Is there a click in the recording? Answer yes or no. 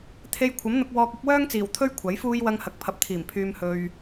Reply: no